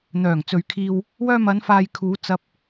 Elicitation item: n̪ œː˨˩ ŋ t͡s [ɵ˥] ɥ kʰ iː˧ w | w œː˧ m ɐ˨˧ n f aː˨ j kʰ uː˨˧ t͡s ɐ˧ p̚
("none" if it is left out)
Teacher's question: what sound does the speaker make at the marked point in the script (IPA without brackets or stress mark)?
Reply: ɵ˨